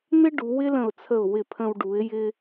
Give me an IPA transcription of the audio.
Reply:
n̪ ɪ˥ ɖ u˩˧ w ɪ˥ l ə̃˧˩ ʊ̯ t͡sʰ ə˧˩ ʊ̯ w ɪ˧˩ pʰ ə̃˧ w ɖ u˩˧ ɪ̯ j ɪ˧

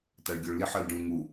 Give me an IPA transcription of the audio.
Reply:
t a ɭ ɡʲ o ɭ l i ħ ɤ l ɖ ũ ŋ u

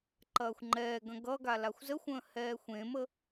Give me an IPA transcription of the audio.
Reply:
ǃ ɐː xʷ ŋ͡ǃ ɛː ɡ ɐ̃ ɡ ʌ ɡ a l a xʷ z ə xʷ ə̃ː h ɛː xʷ ẽ m ə

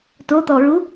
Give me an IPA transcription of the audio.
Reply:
t o t̪ ɔ ɹ u

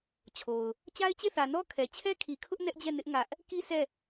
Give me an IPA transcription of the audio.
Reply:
t͡ɕʰ o˨ ʊ̯ | t͡ɕ a˦ ɪ̯ t͡ɕ e˦˨ θ ä˨ n ɔ˦ kʰ ɛ˨ t͡ɕʰ ɛ˦ kʰ i˨ kʰ ʊ˦ ʔ n ɛ˦ ʔ d͡ʑ ɛ˦˨ n ɪ˦ ʔ ŋ ä˦ ʔ | k i˦ sʰ ɛ˦˨

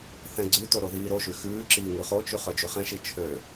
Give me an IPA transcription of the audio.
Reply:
θ ɛ̃ ɡ͡ǀ ʉ t o ɾ o ð iː ɾ o ʃ y x ʉː ǁ iː ŋ ʉ χ o t͡ʃ y χ œ d͡ʒ ʉ χ ɛ̃ ʃ i t͡ʃʰ ø

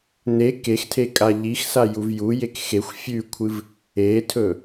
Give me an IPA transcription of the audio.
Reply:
n e k e x tʰ e kʼ a ʎ i x s a j u v j u j e k x e xʷ fʲ ʉ kʷʰ ɨ v | e tʰ ɵ

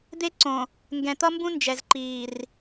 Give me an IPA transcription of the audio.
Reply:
d̪ e˦ ǀ õ˨ | ŋ ɡ ɛ̃˨ t̪ ʌ˦ m b ũ˦ n d͡ʒ ɛ˨ z ǃ iː˨ r

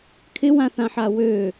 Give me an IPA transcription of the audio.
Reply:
kʰ ɪ w ã θ ã ħ a w ø

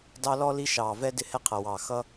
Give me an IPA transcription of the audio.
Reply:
d ɑ˦ l ɔ˦ l i˦ ʃ ɑː˨ v ɛ˦ d ɪ˦ h ɛ˦ qʰ ʌ˨ w ɑː˨ x ʌ˦

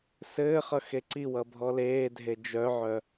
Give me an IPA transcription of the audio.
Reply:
s ɘː χ ʌ x e ǀ i w ʌ bʱ ɔ l eː dʱ e d͡ʒ œ ʕ œ

